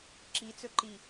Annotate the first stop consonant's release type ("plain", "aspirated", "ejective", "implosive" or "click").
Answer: click